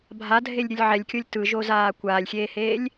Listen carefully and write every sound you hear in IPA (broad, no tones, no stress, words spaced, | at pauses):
bʱadʱelʲɾʲɯlʲ ʕɛlʲkʲolʲ tɯʒozaː kʷaːlʲxʲeːheːlʲ